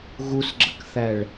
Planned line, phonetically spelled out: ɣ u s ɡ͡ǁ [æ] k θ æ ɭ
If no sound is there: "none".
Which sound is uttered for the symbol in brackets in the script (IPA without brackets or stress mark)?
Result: ə